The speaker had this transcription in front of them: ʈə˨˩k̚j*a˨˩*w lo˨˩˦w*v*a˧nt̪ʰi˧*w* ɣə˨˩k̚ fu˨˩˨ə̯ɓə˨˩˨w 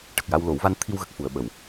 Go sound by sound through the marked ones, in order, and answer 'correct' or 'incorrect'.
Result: incorrect: a˧, correct, correct

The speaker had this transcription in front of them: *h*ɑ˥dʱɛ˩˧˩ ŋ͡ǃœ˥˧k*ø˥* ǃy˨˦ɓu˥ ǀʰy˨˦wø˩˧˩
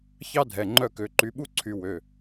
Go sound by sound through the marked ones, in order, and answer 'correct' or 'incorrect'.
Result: incorrect: ç, incorrect: ø˨˦

